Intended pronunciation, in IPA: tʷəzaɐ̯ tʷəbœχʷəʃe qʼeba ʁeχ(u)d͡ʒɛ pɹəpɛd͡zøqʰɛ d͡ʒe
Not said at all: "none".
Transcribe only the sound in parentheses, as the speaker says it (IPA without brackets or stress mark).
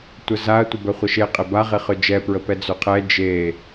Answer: ø